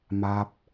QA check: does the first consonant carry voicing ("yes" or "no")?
yes